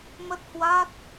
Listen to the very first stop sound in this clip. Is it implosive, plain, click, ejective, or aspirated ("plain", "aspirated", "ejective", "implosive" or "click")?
plain